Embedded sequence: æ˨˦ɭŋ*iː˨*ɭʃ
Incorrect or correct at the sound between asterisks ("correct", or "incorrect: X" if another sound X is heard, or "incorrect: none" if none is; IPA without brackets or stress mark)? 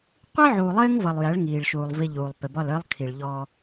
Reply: correct